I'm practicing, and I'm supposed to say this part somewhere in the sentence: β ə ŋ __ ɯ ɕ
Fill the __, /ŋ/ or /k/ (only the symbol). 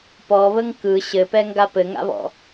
k